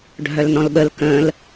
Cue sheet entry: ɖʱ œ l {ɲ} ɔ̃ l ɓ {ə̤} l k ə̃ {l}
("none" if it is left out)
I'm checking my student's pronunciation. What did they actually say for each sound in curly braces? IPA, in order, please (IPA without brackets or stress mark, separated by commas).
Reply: n, ə, l